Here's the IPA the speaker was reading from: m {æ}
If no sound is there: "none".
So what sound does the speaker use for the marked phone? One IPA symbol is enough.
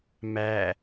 æ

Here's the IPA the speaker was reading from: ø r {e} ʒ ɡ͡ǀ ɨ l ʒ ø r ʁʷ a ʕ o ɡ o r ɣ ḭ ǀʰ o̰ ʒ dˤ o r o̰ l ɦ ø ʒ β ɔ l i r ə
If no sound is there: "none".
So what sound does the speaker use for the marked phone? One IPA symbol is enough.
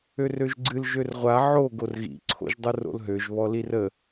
ø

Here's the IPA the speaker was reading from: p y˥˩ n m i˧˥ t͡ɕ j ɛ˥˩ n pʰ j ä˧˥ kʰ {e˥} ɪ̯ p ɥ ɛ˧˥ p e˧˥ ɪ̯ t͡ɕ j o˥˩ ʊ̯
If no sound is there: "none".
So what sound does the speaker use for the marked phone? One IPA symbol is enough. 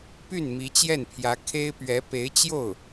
e˥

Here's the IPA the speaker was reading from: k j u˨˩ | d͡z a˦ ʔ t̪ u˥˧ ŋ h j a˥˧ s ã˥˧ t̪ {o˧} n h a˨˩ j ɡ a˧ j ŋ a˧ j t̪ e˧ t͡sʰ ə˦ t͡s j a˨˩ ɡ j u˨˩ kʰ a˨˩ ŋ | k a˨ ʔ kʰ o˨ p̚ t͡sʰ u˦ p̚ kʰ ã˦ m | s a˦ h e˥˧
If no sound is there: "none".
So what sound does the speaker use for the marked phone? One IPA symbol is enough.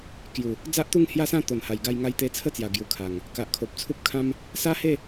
o˨˩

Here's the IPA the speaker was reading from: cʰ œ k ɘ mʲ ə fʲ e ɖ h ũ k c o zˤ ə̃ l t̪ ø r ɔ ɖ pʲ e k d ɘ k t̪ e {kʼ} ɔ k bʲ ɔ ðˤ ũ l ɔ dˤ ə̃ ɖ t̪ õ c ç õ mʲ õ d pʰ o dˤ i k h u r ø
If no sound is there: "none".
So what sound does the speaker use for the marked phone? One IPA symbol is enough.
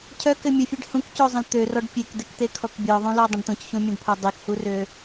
kʰ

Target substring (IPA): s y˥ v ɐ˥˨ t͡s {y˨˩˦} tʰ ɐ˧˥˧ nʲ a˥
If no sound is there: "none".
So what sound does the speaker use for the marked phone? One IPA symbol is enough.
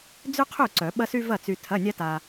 y˧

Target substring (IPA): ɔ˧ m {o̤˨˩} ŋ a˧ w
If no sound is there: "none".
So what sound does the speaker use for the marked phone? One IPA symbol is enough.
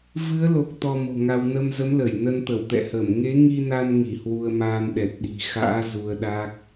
o̤˨˩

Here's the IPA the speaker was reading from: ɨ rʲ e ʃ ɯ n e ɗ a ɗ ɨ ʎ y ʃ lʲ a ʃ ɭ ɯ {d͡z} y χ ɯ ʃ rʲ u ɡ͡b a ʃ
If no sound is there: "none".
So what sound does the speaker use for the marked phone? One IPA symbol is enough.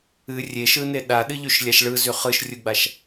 z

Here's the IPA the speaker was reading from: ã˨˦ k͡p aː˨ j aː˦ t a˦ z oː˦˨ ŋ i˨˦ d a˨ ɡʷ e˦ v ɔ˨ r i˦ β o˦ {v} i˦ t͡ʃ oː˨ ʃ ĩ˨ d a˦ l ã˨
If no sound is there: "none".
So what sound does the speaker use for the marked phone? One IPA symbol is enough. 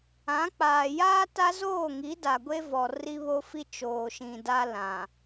f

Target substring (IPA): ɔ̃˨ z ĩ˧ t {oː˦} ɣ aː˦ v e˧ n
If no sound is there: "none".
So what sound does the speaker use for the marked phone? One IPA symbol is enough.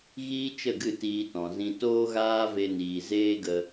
oː˦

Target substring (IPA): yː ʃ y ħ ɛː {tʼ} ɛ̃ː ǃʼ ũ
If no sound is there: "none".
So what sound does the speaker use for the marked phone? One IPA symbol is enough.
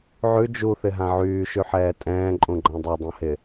tʼ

